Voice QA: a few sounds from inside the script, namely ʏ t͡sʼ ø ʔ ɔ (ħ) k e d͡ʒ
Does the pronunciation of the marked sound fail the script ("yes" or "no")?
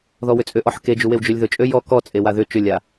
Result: no